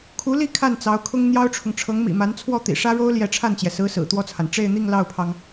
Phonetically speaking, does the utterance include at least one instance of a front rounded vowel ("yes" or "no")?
no